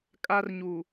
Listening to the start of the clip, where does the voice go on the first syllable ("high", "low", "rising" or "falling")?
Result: high